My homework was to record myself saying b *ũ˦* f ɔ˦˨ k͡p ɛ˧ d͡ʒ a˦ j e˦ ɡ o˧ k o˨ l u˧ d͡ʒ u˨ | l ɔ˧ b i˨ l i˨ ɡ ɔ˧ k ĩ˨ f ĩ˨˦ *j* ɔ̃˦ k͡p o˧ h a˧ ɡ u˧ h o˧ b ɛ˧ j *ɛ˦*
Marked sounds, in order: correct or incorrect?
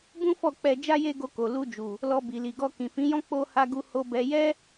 correct, correct, correct

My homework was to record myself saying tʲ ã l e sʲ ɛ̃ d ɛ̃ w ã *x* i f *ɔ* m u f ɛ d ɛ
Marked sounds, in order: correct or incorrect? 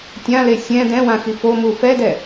correct, incorrect: o

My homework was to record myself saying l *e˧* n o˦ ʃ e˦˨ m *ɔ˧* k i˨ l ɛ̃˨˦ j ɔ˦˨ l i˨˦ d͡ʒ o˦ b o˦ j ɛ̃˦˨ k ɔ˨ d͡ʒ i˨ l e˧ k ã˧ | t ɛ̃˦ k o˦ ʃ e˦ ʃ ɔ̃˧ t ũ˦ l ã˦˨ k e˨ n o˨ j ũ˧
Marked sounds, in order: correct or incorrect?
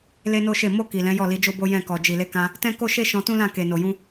incorrect: e˦, incorrect: o˧

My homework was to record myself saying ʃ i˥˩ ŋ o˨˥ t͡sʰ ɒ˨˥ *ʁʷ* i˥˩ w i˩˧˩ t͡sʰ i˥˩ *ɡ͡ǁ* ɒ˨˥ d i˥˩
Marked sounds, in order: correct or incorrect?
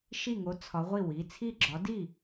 correct, correct

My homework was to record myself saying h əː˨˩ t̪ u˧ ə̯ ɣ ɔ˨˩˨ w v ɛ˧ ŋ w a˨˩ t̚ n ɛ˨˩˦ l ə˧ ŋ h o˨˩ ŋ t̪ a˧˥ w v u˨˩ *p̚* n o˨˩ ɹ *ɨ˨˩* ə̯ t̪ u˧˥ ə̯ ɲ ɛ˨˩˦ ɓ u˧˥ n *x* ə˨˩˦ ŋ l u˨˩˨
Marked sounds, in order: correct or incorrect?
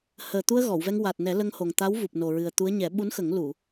correct, correct, correct

